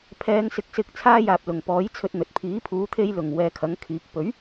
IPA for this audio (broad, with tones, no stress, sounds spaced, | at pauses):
pʰ ɛː˨˧ ŋ s ɪ˨˥ k̚ s ɪ˧ k̚ t͡sʰ aː˧ j aː˨ p̚ l ʊ˨˩ ŋ p ɔː˨˥ j t͡sʰ ɵ˧ t̚ n̪ ɵ˨ t̚ pʰ iː˨˥ pʰ uː˨˥ t̪ʰ e˧ j l ʊ˨˩ ŋ w ɛː˨˧ kʰ ɐ˨˥ ŋ kʰ iː˨˥ k̚ p ɵ˨˥ ɥ